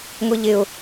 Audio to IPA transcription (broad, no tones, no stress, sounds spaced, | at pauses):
ŋʷ i ʎ ɪ ʊ̯